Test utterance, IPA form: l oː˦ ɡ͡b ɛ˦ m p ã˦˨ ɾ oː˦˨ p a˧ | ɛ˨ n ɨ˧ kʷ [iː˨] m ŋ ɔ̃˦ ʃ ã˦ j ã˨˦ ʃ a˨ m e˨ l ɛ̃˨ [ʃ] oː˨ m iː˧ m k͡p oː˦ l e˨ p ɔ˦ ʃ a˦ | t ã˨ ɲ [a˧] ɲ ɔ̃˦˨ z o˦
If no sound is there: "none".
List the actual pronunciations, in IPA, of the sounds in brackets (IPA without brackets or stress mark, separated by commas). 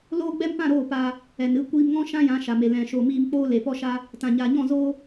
iː˧, ʃ, a˨